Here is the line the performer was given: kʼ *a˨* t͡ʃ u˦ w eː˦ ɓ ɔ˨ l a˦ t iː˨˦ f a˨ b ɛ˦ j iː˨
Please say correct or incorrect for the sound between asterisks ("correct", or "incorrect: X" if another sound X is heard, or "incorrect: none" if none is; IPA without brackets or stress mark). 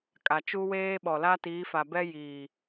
correct